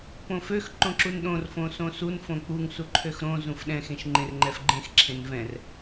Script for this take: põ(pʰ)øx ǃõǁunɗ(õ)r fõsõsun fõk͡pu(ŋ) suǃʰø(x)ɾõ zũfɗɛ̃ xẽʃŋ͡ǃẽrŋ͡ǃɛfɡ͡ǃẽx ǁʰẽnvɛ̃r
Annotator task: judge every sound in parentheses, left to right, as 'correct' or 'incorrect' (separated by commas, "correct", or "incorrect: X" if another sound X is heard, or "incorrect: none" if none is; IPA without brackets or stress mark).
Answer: incorrect: f, correct, correct, correct